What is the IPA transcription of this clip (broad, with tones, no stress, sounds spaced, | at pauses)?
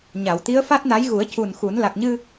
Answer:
ɲ a˨˩˨ w t̪ i˧˥ ə̯ f a˦˥ t̚ n a˧˥ j ɣ u˨˩˦ ə̯ c u˨˩ n x u˨˩˦ n l a˨˩ k̚ ɲ ɨ˧